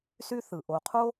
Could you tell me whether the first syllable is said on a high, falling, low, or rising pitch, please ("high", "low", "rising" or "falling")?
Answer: high